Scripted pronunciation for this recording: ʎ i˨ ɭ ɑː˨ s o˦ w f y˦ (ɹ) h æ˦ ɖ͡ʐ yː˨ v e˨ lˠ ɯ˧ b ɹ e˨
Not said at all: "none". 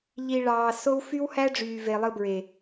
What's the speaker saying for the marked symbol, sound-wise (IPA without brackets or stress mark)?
w